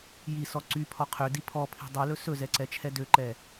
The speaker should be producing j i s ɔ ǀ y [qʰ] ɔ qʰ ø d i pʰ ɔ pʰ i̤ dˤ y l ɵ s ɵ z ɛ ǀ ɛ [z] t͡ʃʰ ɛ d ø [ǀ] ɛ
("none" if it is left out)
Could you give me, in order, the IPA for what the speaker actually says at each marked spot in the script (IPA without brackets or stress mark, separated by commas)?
pʰ, none, ǃ